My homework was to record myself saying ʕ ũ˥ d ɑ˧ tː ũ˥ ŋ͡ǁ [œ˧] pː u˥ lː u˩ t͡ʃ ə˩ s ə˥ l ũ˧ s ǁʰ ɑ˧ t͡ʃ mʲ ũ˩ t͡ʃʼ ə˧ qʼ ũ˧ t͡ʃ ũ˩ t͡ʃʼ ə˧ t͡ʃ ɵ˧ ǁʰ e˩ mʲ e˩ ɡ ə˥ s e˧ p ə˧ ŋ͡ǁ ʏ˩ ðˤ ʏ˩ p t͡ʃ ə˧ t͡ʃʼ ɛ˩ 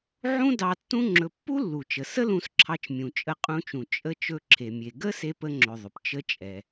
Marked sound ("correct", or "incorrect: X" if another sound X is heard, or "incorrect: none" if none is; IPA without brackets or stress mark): incorrect: ɵ˧